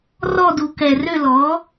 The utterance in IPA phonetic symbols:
r ɔ˥˨ d u˧˩˧ k ɛ˨˩ r ø˥˨ l ɔ˩˥

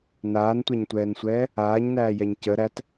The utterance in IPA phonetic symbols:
n aː n tʷ a ɲ tʷ ɛː n sʷ ɛː | aː ɲ n æː j ɛ ɲ c ə ɾ æ t

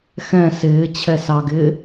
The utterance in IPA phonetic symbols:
x ɛ̃ s ɪː t͡ɕʰ ɛ s ɑ ɡ ɪː

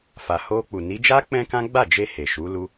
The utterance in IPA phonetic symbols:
f a˨ h o˧ k͡p u˨ n i˨˦ d͡ʒ a˦ k͡p ɛ̃˦ k ã˦ ɡ͡b a˦˨ d͡ʒ e˧ h e˨ ʃ u˨˦ l u˧

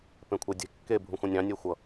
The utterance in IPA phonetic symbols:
p ẽ kʷʰ ɛ dʲ e̤ kː e bʱ ũ xʷ ɑ̃ nʲ ɑ̃ nʲ e xʷ ʌ

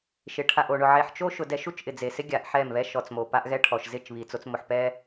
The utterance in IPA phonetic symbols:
ʃ ɪ˨ ʈʰ a˨ ʔ o˨ ɳ ʊ˨ ʕ e˨ ħ t͡ʃ o˦ ʃ ʊ˨ d ɛ˦ ʃ u˦ t͡ʃ ʔ ɪ˨ d͡z e˨ s ɪ˦ ɡʲ a˨ ʔ ħ ɛ˦˨ m β ɛ˦ ʃ ɔ˨ t͡s m o˨ p a˦ ʔ ɣ ɛ˦ ʈʰ ɔ˨ ʃ z ɪ˦˨ t͡ʃ β i˨ t͡s o˦ t͡s m ʊ˨ ħ p ɛ˦

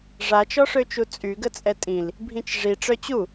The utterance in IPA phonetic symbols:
ʐ a t͡ʃ ɔ ʂ ø t͡ʃ u t͡sʼ y ɡ ə t͡sʼ ɛ tʼ ĩ l | bʱ ĩ t͡ʃ ʐ i ʈ͡ʂ œ t͡ɕ u

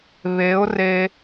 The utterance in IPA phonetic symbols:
β e˨˦ ʊ̯ r e˧

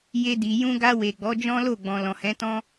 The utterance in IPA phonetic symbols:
j e˧ d i˨ j ũ˧ ɡ a˧ w e˨ ɡ͡b ɔ˨˦ d͡ʒ ɔ̃˦ l o˦˨ ɡ͡b ɔ̃˨ l ɔ̃˨ h ɛ̃˨˦ t ɔ̃˦

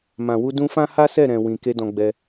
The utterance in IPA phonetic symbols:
m ã˨ w u˧ d ũ˧ f ã˦ h a˦ s ɛ˦˨ ɾ ɛ̃˨ w ĩ˨ k e˧ d ɔ̃˧ ɡ͡b ɛ˧

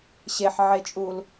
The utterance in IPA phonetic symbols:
ɕ e ħ ʕ e t͡ʃʼ u l

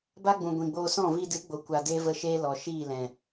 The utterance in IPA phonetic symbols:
b a˦ ɡ͡b ũ˨ ɡʷ ĩ˨ ɡ͡b oː˧ s ɔ̃˦˨ v i˧ d ɨ˨˦ ɡ͡b o˨ kʷ a˨ d eː˦ v ə˦˨ ʃ eː˦ l ɔ˨ ʃ iː˦˨ l ɛ̃˨

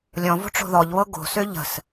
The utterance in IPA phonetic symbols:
lʲ ɔ̃ v o̤ ʈ͡ʂ o̤ ð ɔ ʎ β ɤ ɡ o̤ s ø ʎ ə̤ s

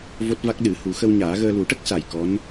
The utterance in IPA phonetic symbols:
v o˦˥ t̚ v a˦˥ k̚ ɗ ɨ˨˩˦ h u˨˩˦ x ə˧ w ɲ aː˨˩˦ ɣ əː˧ l u˨˩˦ ʈ ə˦˥ k̚ s a˨˩ j k ɔ˧˥ n

